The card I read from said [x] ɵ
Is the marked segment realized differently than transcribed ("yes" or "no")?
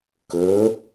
yes